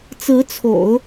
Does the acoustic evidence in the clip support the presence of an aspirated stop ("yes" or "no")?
yes